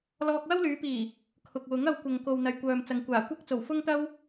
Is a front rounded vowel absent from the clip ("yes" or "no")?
no